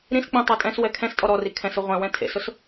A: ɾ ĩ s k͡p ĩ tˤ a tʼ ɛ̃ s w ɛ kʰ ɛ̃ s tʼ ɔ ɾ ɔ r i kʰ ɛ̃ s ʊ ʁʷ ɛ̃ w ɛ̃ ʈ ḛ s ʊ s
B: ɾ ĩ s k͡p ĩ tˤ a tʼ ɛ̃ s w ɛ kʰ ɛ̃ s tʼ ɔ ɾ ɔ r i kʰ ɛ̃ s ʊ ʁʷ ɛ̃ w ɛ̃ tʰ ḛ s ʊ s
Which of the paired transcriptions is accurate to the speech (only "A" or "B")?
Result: B